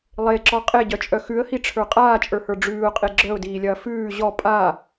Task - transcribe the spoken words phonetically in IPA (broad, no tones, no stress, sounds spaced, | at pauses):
lˠ e ǁ ɔ qʼ e ɟ œ t͡ʃʼ œ x ʉ ə̯ h i ʈ͡ʂʰ ə˞ qʼ aː t͡ʃʼ ə˞ h ə˞ ɖ͡ʐ ʉː ʊ̯ qʼ e ɡ͡ǁ œ ʊ̯ d iː lʲ ɐː f ʉː ʑ ɔ pʼ a